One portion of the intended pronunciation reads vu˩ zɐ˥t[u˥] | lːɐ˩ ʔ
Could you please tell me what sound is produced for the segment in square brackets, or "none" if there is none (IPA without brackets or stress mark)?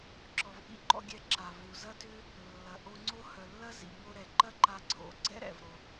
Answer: ʏ˥